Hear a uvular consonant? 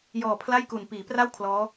no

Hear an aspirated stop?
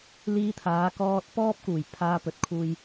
yes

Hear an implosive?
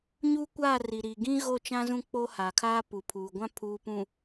no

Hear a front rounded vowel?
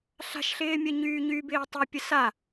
yes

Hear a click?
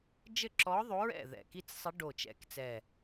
yes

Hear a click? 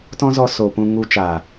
no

